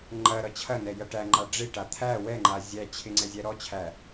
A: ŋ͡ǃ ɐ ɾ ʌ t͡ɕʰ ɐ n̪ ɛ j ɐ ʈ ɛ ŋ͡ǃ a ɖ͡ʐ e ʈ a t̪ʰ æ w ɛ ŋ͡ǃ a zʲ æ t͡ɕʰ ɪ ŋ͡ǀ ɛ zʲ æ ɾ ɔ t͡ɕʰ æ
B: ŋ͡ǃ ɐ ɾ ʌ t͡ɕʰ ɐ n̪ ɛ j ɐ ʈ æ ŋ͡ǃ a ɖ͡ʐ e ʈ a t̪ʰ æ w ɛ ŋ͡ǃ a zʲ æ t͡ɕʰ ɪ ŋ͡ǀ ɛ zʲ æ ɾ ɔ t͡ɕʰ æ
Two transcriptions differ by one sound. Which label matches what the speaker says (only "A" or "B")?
B